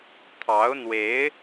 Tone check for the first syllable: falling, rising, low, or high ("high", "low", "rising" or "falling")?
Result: rising